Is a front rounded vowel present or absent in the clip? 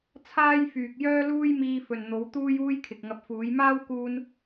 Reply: present